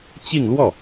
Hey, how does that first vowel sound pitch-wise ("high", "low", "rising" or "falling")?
falling